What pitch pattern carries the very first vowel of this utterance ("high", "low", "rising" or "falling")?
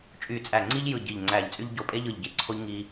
low